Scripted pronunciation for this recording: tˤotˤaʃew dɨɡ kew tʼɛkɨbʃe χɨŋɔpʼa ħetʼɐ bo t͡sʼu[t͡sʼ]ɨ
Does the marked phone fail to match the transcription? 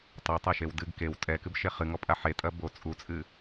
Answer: no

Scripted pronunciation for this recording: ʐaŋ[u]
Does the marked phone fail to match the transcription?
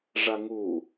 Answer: no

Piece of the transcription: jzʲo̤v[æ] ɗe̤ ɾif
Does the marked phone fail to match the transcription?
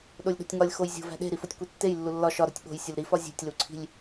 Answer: yes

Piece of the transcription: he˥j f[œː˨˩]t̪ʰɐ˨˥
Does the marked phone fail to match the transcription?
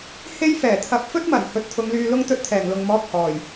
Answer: yes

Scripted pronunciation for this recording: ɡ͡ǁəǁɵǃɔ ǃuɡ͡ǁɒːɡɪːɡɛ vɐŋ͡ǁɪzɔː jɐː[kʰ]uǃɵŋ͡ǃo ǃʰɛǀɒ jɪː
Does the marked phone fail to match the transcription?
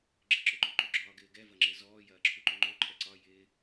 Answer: yes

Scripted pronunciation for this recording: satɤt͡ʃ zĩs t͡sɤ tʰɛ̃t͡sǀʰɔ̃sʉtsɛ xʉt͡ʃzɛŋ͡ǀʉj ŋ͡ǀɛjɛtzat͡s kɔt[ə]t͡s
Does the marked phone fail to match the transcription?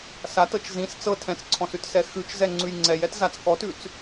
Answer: yes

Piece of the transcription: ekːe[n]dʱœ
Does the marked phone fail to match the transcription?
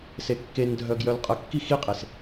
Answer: no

